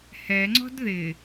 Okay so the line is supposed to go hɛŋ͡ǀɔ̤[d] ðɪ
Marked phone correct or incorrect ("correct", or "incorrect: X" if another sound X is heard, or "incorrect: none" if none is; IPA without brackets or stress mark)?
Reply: correct